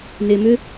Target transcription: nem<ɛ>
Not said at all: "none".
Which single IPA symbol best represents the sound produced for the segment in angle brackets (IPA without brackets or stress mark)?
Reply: ʏ